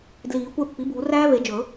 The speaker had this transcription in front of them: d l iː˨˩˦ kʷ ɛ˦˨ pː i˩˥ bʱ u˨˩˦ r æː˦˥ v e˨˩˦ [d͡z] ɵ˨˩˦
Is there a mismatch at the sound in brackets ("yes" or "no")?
yes